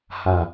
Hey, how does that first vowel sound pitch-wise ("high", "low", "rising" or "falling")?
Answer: low